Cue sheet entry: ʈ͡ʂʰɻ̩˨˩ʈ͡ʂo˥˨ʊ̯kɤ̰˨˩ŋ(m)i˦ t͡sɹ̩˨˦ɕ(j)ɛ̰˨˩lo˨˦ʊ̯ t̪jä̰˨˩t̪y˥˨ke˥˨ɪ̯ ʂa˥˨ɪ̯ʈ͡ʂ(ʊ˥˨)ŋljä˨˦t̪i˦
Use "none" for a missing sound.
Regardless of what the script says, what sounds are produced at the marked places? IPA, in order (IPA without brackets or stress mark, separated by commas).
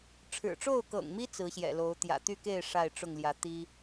m, j, ʊ˥˨